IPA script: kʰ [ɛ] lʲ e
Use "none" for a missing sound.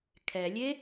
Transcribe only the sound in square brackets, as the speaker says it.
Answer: ɛ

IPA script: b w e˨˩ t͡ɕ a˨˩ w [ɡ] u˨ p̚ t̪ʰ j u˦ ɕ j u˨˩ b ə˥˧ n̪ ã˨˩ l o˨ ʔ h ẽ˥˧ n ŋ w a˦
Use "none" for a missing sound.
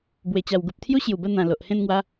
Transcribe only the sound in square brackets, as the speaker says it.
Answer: ɡ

